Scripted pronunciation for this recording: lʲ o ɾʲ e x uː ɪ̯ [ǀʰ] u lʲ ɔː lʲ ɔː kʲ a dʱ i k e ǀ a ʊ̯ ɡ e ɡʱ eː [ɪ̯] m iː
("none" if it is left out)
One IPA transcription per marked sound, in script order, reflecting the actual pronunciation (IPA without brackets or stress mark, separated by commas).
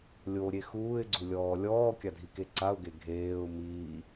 ɡ͡ǀ, ʊ̯